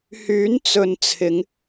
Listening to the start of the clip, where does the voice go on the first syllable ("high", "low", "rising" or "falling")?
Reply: rising